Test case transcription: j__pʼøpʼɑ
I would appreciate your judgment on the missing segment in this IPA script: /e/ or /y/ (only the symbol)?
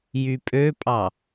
y